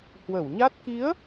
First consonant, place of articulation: glottal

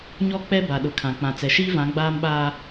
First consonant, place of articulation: palatal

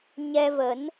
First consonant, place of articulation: palatal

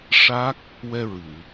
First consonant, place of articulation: retroflex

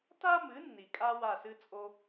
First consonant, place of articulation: alveolar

